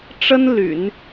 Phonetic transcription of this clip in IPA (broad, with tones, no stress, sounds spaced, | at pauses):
ʈ͡ʂ ə˥ n l y̰˨˩˦ n